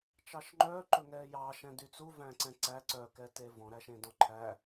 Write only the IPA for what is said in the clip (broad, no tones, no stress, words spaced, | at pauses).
t͡ʃɑʃŋ͡ǃœː ǃɵŋɛːjɑ ʃɛ̃dyt͡su væ̃ǀɛ̃ǀæ ǀœ kɛtevɔ̃ ɾæʃẽdɔ̃ǃʰæ